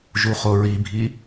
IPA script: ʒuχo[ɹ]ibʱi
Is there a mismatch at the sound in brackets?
no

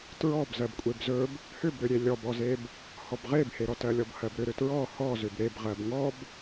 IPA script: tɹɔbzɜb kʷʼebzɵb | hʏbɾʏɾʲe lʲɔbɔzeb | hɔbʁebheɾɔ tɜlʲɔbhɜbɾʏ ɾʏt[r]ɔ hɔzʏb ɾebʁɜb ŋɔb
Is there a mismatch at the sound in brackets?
yes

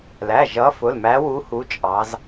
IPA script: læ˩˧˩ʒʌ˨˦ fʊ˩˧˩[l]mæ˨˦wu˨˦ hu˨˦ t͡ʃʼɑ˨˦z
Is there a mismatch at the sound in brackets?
no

